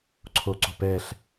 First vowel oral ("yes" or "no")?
yes